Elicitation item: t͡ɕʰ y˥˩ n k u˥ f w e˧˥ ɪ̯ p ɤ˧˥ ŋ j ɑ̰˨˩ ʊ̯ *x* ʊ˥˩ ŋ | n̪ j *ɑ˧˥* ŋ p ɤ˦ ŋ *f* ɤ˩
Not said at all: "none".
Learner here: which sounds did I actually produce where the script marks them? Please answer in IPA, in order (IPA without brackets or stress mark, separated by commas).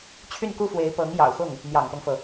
x, ɑ̰˨˩, f